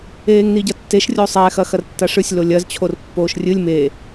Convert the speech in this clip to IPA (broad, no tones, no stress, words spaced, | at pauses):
eːŋniɟɐtːeʃ rʲosˤɛ xɐxɐrtːaʂɨsʲ lolʲɐz t͡ɕʰorpːoːʃrʲɨlʲ me